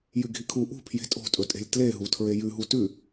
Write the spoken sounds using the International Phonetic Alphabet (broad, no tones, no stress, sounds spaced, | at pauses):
j ʉ ɡʱ i kʰ u ʔ ṳ pʰ j e̤ tʼ o̤ tʼ ɵ tʼ e̤ lʲ t l e ɦ u tʰ ɹ e j ʉ ɦ u t ʉ